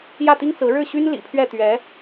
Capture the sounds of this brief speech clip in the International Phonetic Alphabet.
jä˥˩t̪i˥ŋ t͡sɹ̩˧˥ ɻɻ̩˥˩ɕy˥n lḭ˨˩pʰɥɛ˥˩ t̪ɥɛ˧˥

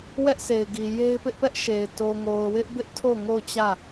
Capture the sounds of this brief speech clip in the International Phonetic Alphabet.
wɛ˦ʔse˨ɪ̯ɡi˨ je˦ɪ̯pɪ˦ʔpɛ˦ʔʃe˨ɪ̯ to˨ŋo˨ʊ̯wɪ˦ʔ bɪ˦ʔtʰo˦˨ ŋo˦˨ʊ̯t͡ɕä˦˨

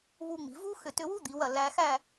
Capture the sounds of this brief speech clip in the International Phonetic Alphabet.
βu˧ŋ͡mi̤˩˧vu˥ xʏ˧˩tʏ˧wu˥ d̪i˩˧wɐ˧˩ læ˧xæ˥˧

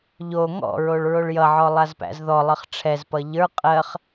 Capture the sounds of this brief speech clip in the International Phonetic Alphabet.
ʎo ŋɔ̰ɹoɭ ɹoɭjʌʕɔ lˠazpæ̰zðɔlˠɜχ ʈ͡ʂʰɛzpʌ ʎə˞ qʼɜχ

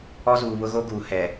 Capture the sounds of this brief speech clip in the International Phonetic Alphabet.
ɔ˦zuː˨βʊ˦ ɣo˦ɡuː˨ hɛ˨

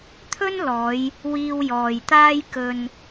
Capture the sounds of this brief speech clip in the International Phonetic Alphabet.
t̪ʰɵ˥nlɔː˨˧j | wiː˧wjɔː˨jt̪aː˥j kɵ˧n

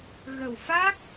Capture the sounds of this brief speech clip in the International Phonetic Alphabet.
ɣə˨˩wfa˦˥k̚

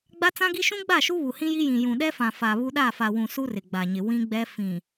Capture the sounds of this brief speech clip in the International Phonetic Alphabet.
ɡ͡ba˦t͡sã˦ɡi˦ ʃũ˦ɡ͡ba˦˨ʃu˦ βu˨hĩ˦ji˦jĩ˨ jũ˨ɗɛ˦fã˨ fa˨βu˦ ɗa˦˨fa˨wũ˨ su˦rɪ˨ɡ͡ba˨ɲɪ˨ wĩ˦ɡ͡bɛ˦ fĩ˨

